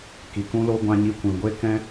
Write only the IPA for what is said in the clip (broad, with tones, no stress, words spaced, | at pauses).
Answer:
ki˨kũ˧lo˧ ɡʷã˧ɲi˧kʷĩ˨ ɡʷe˧ kɛ̃˦